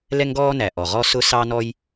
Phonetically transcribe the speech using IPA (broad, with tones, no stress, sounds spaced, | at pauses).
l ɛ˥ ŋ ɡ ɔː˥ n æ˩ ʔ ɔ˩ ʁ ɔ˥ s ʊ˥ s ɑ˥ n ɔ˥ j